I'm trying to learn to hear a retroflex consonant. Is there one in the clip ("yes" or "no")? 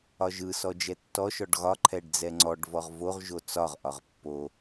yes